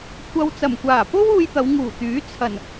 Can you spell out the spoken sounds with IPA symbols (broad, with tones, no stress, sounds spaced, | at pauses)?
kʷʰ ɐ˧ w t͡s ɐ˨˩ m kʷ aː˨˩ p o˥ w uː˧ j t̪ ɐ˨˧ w ŋ uː˨˩ t̪ yː˨˥ t͡sʰ ɐ˨˩ n